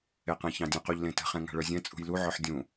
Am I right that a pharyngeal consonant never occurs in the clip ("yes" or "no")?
no